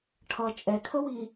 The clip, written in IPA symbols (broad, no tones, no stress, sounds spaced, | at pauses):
ʈʰ ʌ t͡ʃʼ ɛ kʰ ə w i